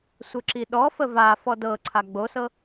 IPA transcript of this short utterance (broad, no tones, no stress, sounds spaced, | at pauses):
sʷ ɘ ǁ i ɗ ɔ f ə v a f ɔ d ɤ ǀʰ a ɡ͡b o s ɤ